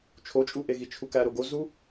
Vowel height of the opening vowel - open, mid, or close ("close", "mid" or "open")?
mid